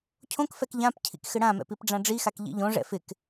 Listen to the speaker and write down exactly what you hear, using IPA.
cʰ õ k f ɛ k ʎ ã p cʰ ḭ k x ɪ ɽ ã m ɛ̰ p i p ɖ͡ʐ ã ɖ͡ʐ i x a k ʎ ḭ ʎ õ ʐ ɛ̰ f ɪ k

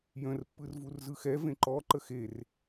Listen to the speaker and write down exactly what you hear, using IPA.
j ə̃ r pː ɯ r v u r z ɯ x ɛ v ẽ ǃ ɔ ǃ ə x e r

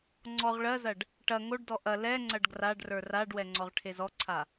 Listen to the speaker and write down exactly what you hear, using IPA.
ŋ͡ǀ ɔ ʁ ɭ ɜ z ɐ ɖ | ʈ ɐ ŋ o ɖ d ɔ ʔ ɐ l ɛ ŋ͡ǀ ɐ ɖ ɡ r a ɖ r ə˞ r a ɖ w ɛ ŋ͡ǀ ɔ ʁ ʈʰ e z ɔ ǀʰ a

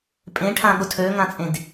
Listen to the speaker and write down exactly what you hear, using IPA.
pʼ ẽ ʈʰ ã ɠ ʊ tʰ ø ŋ ã t͡sʼ ẽ d

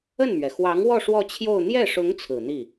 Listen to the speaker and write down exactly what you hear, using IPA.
ə˥˩ n m ɥ ɛ˩ x w ɑ˧˥ ŋ w ɔ˥˧ ʂ w ɔ˥˧ t͡ɕʰ j o˥˧ ʊ̯ n̪ j ɛ˥˩ ʂ ʊ˧˥ ŋ t͡sʰ ɹ̩˨˩ n̪ i˥˩

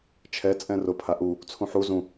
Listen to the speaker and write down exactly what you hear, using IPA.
t͡ʃʰ ɛ t͡sʼ ɛ̃ r ʊ pʰ a ʔ u | t͡sʰ ũ ħ u z ũ

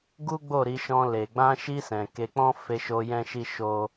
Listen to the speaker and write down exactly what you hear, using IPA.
ɡ u˦ ɡ͡b o˦˨ ɾ i˧ ʃ ɔ̃˧ l e˨ ɡ͡b ã˧ ʃ i˧ s ɛ̃˨ k e˧ k͡p ɔ̃˦ f e˧ ʃ o˧ j ɛ̃˦ ʃ i˦ ʃ o˦

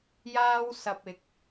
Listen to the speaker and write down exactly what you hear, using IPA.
j aː˥ w s ɐ˧ p̚ ɪ˨ k̚

